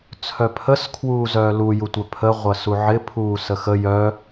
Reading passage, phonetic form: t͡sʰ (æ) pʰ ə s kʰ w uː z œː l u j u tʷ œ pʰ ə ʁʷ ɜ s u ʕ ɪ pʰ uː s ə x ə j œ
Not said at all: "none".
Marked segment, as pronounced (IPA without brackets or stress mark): œ